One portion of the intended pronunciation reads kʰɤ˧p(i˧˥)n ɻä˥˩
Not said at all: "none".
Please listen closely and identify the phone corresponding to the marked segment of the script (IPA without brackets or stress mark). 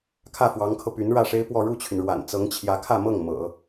y˧˥